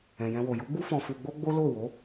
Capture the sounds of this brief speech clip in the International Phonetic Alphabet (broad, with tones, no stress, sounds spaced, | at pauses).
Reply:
ɛ̃˨ j ɛ̃˧ w o˨ j u˨˦ ɡ͡b u˦ f ɔ̃˧ f u˧ ɡ͡b o˦ ɡ͡b o˦ l o˦˨ w o˨˦